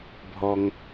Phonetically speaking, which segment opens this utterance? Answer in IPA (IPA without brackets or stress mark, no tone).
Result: bʱ